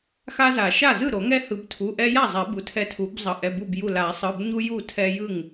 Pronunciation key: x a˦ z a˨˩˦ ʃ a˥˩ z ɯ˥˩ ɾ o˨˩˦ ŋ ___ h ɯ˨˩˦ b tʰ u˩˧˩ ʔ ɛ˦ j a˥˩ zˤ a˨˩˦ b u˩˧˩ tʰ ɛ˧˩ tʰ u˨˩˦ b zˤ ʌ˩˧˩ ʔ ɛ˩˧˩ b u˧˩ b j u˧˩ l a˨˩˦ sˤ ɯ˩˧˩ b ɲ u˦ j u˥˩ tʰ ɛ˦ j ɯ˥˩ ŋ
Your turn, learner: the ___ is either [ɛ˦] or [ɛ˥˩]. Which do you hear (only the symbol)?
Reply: ɛ˦